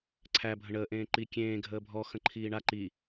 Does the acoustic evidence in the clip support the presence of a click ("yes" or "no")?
yes